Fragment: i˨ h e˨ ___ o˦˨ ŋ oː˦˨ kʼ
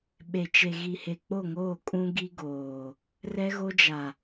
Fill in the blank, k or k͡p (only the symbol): k͡p